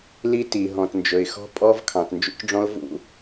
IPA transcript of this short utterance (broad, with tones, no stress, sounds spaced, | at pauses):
l i˥ t i˨ ɦ ɔ̃˨ t n d͡ʒ ɵ˨ ɪ̯ x ɔ̤˥ pʼ ɔ˥ v kʰ ɑ̃˨ t n d͡ʒ ṵ˥ c ɖ͡ʐ ɔ̃˥ ʊ̯ v ṵ˥